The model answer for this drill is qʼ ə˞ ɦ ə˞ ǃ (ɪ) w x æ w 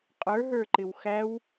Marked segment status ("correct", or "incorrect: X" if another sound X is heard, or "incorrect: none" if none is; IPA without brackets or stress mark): correct